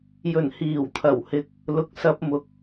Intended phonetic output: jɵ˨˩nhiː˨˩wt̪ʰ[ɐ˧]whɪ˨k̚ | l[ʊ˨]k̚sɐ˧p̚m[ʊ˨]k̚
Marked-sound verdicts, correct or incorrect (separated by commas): incorrect, correct, correct